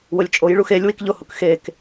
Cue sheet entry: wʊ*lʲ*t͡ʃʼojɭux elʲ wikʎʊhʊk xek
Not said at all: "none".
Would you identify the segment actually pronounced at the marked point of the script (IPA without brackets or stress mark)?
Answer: lʲ